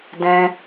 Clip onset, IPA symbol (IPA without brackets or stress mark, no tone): d